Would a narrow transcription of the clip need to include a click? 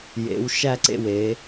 yes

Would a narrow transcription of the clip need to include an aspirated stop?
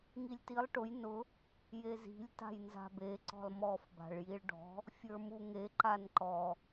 no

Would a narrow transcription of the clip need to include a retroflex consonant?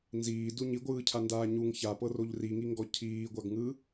no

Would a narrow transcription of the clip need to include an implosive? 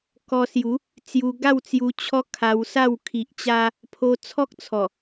no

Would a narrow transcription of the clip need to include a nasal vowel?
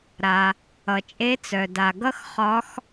no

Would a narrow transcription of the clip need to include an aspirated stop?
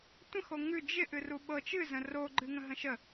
no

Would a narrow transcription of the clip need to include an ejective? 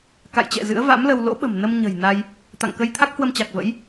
no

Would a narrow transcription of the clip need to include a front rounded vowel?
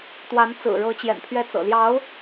no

